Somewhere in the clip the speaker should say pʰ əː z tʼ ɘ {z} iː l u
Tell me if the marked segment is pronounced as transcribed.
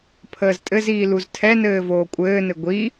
yes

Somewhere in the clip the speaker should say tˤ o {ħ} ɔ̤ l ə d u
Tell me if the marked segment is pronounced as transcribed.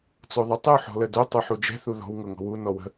yes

